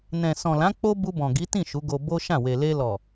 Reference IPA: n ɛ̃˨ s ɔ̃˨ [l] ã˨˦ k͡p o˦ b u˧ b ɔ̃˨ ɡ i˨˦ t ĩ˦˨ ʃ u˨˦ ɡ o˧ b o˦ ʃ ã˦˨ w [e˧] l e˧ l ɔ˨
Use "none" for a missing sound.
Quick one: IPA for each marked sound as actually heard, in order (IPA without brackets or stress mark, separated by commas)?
l, e˨